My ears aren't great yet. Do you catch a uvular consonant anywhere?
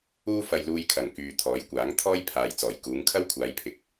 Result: no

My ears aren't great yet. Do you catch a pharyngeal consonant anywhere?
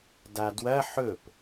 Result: yes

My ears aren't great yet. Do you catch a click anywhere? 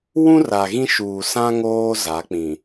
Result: no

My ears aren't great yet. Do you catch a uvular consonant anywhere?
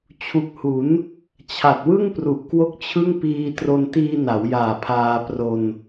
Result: no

